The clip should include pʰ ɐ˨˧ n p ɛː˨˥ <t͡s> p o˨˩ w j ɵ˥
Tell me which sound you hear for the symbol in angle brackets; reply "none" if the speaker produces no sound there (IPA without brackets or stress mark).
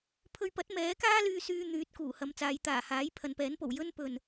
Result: n